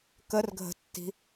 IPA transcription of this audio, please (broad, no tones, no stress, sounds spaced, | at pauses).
k ə r ɡʱ ə̤ tː i̤